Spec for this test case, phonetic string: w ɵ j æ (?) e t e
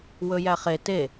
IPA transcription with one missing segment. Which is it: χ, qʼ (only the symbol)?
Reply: χ